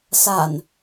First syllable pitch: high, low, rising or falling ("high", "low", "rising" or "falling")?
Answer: low